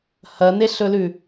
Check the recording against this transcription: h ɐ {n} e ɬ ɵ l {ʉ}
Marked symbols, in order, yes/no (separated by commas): yes, yes